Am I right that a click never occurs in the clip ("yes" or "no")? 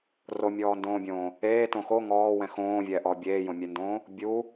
yes